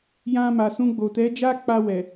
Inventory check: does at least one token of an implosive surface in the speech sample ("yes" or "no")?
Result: no